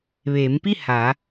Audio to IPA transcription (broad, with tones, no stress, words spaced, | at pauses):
ʋeː˩˧mpi˥˨ ha˩˧